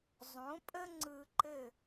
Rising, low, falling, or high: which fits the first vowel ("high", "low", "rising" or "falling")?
rising